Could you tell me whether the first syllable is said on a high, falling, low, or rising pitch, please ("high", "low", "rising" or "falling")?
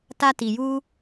high